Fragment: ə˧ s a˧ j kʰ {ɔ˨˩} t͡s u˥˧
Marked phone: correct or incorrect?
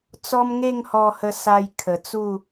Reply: incorrect: ə˨˩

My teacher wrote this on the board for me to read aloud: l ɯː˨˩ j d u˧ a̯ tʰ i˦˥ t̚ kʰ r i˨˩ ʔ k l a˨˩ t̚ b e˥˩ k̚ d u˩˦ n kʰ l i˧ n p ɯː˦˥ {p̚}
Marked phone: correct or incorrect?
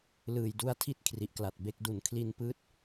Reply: incorrect: t̚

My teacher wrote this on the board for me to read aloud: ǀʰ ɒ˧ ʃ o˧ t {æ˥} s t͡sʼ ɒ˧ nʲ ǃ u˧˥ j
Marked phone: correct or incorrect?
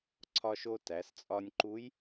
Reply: incorrect: æ˩˧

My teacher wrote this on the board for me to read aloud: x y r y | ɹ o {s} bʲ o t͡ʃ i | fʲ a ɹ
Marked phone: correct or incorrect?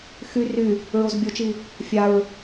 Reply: incorrect: z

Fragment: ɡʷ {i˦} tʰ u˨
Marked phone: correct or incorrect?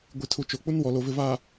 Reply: incorrect: i˨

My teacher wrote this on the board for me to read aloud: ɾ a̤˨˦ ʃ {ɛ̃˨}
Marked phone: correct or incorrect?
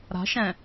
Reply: correct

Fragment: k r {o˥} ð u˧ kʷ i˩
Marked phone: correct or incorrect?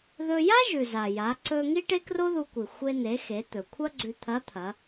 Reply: correct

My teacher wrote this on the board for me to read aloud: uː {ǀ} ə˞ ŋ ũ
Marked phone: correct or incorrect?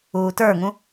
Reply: incorrect: t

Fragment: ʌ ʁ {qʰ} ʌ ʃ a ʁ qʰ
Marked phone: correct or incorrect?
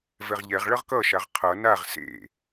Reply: incorrect: k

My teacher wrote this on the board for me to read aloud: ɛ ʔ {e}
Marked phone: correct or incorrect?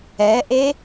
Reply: correct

